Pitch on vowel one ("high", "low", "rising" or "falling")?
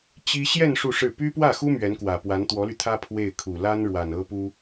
high